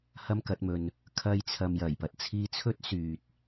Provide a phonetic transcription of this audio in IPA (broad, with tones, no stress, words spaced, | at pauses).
hɐ˥mkɐ˨˥t̚mɵ˧n | kʰɐ˧jt͡sʰɐ˨m jɐ˨˩jpɐ˨t̚ t͡sʰiː˧t͡sʰɵ˥t̚ syː˨t̚